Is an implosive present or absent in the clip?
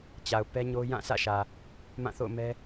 absent